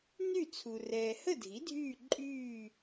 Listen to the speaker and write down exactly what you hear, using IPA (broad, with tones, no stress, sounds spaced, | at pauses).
n y˥˨ t͡sʰ u˨ r ɛː˨ h ə˥˨ dʱ i˩˥ dʱ yː˥˨ ǃʼ yː˥˨